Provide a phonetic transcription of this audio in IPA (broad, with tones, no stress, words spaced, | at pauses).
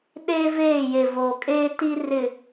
ɗeː˦veː˦˨je˨ voː˨kʼeː˦ ti˦ rɪ˨